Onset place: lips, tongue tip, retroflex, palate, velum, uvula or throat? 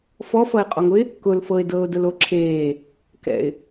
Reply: lips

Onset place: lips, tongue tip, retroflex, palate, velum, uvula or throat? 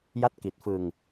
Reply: palate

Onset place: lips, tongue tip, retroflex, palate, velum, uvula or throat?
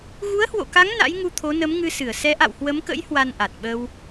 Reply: velum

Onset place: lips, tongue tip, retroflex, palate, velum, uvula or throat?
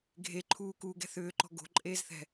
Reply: velum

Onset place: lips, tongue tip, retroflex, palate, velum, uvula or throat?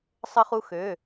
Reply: tongue tip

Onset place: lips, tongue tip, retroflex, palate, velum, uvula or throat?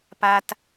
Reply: lips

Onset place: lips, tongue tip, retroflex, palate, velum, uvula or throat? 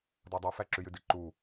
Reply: tongue tip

